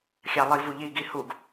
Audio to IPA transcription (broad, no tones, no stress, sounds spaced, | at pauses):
xʲ ɑ lˠ i v u ʎ i ɡ i h u ɡ